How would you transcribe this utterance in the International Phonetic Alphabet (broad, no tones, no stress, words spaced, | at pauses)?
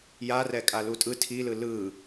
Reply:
jarɛ kʼalutʼɯ tʰilɯ lɯ